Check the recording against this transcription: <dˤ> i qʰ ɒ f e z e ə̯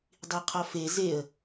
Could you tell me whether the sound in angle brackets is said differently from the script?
no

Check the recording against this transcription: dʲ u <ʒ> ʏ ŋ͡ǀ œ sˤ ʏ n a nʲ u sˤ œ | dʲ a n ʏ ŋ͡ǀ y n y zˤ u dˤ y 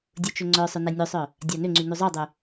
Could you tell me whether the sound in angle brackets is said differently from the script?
yes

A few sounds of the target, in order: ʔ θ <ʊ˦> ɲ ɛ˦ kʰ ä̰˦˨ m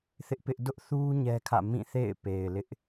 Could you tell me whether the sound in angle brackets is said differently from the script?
yes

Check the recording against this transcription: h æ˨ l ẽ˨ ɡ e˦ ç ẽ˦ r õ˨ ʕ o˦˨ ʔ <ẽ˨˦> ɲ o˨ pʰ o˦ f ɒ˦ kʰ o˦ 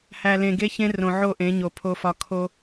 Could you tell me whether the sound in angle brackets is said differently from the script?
no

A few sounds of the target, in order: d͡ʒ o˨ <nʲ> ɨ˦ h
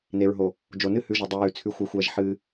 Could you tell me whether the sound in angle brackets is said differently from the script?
yes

